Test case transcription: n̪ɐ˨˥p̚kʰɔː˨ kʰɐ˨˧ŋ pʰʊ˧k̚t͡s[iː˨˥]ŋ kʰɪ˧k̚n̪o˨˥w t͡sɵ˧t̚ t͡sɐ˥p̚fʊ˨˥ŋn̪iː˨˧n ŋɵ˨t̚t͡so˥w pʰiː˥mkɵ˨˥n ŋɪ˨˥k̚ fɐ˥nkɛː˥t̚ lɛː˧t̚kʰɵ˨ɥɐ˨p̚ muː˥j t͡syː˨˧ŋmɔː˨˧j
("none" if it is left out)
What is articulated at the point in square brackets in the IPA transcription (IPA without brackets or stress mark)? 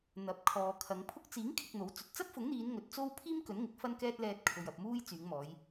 iː˨˥